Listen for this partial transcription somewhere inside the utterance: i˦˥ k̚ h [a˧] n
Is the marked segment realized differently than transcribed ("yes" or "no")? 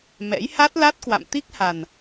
yes